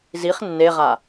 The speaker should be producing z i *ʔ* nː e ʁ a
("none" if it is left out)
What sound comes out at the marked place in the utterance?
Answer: χ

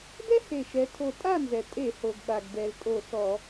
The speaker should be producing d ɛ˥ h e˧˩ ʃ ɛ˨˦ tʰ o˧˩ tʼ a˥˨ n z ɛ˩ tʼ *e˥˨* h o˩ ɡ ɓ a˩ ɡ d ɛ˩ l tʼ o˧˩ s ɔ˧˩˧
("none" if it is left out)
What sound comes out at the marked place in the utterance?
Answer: e˧˩˧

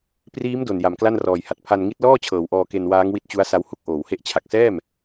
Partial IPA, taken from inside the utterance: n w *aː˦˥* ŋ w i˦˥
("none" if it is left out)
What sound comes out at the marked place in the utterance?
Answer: aː˦˥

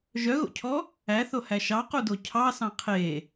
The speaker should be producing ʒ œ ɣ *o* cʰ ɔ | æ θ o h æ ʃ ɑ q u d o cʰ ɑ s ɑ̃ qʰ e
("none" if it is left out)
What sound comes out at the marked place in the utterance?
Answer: o̰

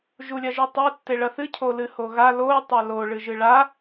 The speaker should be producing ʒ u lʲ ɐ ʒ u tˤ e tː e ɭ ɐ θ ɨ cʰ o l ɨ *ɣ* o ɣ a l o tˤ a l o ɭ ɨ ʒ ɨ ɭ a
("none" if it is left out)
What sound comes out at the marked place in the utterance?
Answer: h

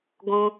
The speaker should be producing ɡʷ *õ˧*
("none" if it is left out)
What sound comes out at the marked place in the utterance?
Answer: ũ˧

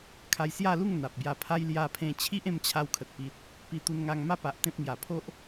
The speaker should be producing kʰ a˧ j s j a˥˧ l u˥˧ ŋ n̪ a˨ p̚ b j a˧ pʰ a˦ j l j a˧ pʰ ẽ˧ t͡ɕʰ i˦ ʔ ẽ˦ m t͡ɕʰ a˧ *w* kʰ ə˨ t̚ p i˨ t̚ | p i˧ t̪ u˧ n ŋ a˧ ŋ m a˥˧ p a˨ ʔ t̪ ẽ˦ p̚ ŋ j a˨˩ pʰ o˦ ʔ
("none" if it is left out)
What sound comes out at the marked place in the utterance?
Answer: w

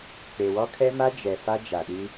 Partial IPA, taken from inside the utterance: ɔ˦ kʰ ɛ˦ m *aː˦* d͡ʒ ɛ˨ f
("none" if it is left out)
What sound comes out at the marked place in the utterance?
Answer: a˦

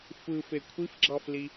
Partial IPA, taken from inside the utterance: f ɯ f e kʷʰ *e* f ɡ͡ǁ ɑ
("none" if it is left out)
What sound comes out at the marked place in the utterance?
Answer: i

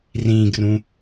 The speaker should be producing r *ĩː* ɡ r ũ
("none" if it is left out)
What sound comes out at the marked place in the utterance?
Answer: ĩː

